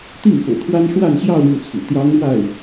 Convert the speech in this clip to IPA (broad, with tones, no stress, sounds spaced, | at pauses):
t̪ i˥˩ ŋ p ɤ̰˨˩ t̪ʰ w a˥ n ʂ w a˥˧ n ɕ j ɑ˥˧ ʊ̯ ɻ u˥˩ t͡sʰ ṵ˨˩ t̪ j ɑ˥ ŋ ɻ w a˥˩ ɪ̯